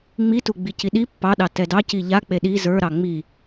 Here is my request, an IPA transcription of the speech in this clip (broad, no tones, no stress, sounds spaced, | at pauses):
ŋ͡m i t u ɡ͡b i c i ɗ i pː ɑ ɗ ɑ t ɛ d ɑ c i ʎ a k͡p e ɗ i z ə˞ ɾ ɑ ŋ͡m i